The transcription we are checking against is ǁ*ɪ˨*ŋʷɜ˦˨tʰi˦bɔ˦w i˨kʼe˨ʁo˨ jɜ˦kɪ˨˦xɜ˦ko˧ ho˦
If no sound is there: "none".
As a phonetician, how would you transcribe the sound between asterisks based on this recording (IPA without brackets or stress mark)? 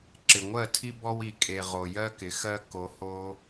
ɪ˨